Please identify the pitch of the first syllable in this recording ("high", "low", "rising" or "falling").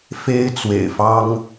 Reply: high